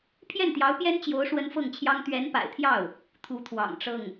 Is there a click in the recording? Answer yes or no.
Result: no